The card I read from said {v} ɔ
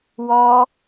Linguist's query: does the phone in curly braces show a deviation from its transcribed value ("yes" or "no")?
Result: yes